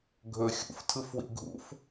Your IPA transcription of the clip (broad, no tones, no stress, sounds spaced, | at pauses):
ɡʱ ɵ xʲ ṵ f tʰ ɯ f w ḭ ɡʱ ṵ f